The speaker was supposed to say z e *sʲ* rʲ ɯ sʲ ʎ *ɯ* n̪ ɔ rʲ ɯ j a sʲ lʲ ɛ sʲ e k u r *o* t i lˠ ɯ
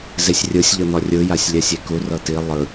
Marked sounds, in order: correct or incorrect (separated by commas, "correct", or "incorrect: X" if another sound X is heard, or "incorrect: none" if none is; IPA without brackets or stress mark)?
correct, incorrect: ɤ, incorrect: ɤ